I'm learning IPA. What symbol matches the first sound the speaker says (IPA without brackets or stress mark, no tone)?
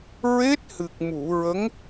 ɹ